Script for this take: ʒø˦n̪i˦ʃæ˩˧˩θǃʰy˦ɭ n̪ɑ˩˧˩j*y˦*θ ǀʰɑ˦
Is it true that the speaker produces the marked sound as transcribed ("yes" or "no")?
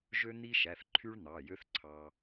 no